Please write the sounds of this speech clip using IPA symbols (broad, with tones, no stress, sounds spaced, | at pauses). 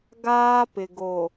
ɡ aː˦ p ɪ˨ ɡ o˨